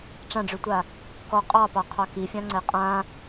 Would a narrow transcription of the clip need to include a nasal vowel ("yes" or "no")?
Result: yes